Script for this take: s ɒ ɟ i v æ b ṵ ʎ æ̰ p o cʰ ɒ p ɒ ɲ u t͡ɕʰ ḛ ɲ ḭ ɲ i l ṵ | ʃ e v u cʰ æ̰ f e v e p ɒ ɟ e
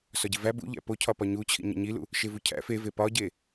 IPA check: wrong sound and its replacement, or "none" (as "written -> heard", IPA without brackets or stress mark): ḛ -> ḭ